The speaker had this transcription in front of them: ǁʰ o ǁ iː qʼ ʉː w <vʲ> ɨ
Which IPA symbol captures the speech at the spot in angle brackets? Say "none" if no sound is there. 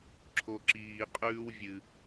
vʲ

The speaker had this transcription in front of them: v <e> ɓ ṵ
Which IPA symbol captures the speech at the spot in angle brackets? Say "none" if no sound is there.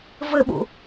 ɘ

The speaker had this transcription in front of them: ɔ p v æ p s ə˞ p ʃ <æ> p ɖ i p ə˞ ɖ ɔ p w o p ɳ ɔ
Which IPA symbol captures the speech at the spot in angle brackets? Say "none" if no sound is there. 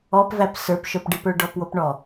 œ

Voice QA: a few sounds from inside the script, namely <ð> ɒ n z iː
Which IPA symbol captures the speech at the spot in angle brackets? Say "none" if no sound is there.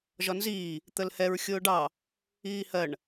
ʒ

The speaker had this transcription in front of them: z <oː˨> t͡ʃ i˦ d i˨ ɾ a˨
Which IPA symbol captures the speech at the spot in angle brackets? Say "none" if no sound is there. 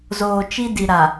oː˨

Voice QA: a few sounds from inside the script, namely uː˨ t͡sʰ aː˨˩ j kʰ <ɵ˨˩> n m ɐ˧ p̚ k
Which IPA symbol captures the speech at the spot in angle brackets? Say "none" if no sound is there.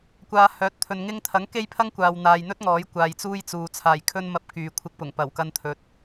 ɵ˥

